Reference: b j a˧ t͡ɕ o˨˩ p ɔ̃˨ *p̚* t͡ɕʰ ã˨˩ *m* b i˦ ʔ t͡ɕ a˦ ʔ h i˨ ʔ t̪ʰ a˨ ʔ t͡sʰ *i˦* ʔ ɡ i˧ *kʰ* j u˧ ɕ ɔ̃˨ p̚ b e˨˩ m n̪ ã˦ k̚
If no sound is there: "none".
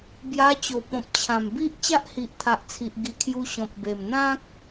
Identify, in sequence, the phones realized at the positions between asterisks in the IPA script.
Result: p̚, m, i˨, kʰ

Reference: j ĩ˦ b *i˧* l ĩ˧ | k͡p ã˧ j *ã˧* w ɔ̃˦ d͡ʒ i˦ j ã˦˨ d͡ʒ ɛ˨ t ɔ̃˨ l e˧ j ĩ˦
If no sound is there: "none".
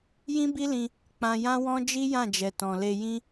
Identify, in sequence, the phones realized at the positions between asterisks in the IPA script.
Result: i˦, ã˦

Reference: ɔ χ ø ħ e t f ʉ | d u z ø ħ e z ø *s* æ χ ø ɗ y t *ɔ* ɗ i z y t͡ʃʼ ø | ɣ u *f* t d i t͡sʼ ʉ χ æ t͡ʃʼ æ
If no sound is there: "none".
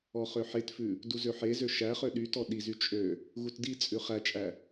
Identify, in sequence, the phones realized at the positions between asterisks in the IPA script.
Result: ʃ, ɔ, none

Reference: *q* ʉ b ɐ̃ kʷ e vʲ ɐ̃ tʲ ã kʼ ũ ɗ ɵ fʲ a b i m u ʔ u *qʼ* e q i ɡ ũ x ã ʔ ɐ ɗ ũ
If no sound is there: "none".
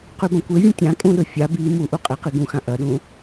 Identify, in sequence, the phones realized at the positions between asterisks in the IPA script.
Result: q, qʼ

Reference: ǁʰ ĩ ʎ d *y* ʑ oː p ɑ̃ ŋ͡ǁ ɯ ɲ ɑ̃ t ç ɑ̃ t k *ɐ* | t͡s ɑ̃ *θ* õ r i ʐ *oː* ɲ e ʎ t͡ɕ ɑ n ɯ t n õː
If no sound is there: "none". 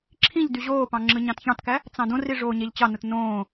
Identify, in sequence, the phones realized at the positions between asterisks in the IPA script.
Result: y, æ, d, oː

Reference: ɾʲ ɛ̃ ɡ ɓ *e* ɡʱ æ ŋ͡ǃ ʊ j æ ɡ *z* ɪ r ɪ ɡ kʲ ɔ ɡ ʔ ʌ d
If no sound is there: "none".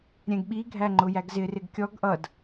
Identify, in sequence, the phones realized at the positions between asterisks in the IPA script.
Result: i, z

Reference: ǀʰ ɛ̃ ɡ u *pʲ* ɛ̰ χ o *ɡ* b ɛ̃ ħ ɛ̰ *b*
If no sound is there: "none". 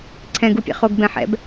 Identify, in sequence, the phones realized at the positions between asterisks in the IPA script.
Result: pʲ, ɡ, b

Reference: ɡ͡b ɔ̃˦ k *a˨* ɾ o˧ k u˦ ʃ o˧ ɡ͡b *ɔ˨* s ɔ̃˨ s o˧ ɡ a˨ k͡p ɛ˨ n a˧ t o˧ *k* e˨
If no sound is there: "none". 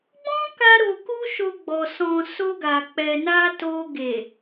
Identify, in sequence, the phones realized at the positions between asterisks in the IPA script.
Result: a˦, ɔ˨, ɡ

